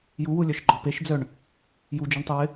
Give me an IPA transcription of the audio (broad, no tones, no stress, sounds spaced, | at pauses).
j u w u lʲ œ ʃ ɡ͡ǃ ɔ p e ʃ d͡z œ ɳ | j u d͡ʒ ø ɳ tˤ u w ɪ